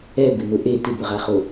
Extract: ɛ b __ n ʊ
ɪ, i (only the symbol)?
ɪ